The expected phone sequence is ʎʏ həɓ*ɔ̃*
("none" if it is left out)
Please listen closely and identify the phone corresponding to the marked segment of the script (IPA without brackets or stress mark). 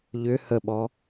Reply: ɔ